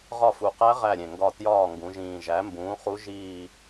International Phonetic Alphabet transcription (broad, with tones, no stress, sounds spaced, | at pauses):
ʁ ɒ˦˨ f u˨˩ q æ˦˥ ʁ æ˦˨ ɾʲ ẽ˨˩ ŋ ɡ ɒ˦˨ t j ɒː˦˨ ŋ ɡ ũ˩˧ ʒ ĩː˨˩ ʒ æ˨˥ m b ũː˨˥ χ u˦˥ ʒ iː˦˨